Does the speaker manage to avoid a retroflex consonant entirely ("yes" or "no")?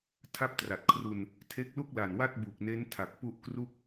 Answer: yes